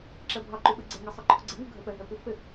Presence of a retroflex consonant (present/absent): absent